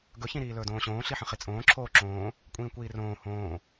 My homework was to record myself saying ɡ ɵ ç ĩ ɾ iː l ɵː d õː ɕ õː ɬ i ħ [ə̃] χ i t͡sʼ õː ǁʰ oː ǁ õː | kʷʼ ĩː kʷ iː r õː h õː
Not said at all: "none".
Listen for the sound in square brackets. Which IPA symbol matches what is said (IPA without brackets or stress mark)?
ə̃